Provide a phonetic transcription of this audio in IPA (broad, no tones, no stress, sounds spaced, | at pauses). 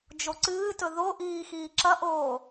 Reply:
d͡ʒ o ǀ ɨː t ɵ ð o ʔ iː x iː ǁ ɐ ʔ oː